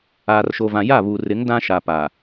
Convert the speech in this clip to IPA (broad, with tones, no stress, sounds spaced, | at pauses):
aː˨ r ʃ o˨ v ã˨ j a˦˨ β u˨ r ɪ˨˦ ŋ d ã˦ ʃ a˨ p a˨